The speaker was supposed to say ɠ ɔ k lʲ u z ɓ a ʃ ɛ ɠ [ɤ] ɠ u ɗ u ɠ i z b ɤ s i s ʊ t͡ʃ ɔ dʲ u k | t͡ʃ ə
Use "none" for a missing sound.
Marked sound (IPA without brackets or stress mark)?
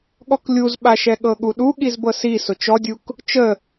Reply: ɤ